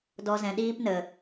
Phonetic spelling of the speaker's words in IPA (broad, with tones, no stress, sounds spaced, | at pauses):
d ɔ˧ z ɛ̃˨ ɗ iː˦ p n ə˨